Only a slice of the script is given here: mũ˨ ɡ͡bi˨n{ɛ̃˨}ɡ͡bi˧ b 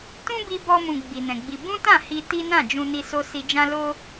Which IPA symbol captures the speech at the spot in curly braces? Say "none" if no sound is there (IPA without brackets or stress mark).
ɛ̃˨